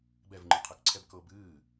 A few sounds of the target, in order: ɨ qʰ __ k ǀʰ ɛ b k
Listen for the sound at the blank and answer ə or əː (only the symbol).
ə